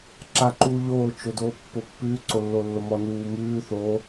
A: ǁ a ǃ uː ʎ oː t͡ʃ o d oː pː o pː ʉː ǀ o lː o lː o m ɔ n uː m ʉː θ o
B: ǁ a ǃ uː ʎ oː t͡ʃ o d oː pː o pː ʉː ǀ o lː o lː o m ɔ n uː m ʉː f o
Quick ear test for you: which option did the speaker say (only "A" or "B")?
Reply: A